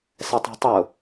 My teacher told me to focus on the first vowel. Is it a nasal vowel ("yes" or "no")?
no